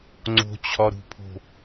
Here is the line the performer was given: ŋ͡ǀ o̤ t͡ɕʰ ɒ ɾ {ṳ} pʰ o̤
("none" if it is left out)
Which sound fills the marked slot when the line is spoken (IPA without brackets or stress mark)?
ṳ